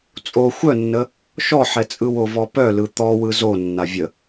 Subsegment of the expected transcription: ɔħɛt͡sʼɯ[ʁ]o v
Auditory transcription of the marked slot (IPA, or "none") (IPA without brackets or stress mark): w